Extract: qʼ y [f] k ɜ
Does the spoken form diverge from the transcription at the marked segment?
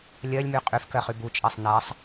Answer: no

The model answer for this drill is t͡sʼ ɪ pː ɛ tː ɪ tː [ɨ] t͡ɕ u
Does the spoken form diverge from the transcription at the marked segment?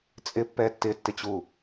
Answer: yes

